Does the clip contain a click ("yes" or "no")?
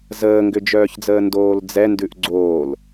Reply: yes